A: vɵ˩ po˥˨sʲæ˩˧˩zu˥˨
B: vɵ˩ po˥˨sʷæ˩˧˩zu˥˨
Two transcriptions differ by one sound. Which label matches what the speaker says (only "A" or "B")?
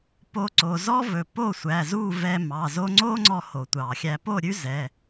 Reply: B